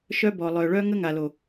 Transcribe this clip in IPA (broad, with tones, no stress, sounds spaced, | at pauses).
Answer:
ʃ œ˦ b ɔ˨ lˠ œ˨ ɭ œ˦ ŋ ə˦ ŋ a˨ l o˨